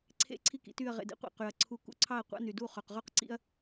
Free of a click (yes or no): no